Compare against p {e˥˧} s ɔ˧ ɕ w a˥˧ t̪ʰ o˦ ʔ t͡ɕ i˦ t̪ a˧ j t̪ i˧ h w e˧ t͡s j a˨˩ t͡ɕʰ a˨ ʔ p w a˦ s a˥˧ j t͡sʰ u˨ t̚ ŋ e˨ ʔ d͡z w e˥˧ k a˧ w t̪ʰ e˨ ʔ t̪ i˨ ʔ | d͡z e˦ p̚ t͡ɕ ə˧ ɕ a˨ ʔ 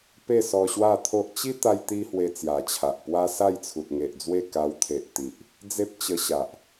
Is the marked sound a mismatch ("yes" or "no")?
no